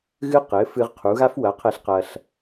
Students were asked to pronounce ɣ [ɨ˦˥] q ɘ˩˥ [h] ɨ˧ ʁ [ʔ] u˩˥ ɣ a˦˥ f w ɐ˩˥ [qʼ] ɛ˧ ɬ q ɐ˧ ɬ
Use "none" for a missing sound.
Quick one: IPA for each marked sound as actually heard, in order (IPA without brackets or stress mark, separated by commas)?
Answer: ɨ˦˥, f, qʰ, qʰ